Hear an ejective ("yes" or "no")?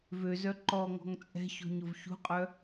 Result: yes